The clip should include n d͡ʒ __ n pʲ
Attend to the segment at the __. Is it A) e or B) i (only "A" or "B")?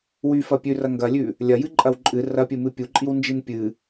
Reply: B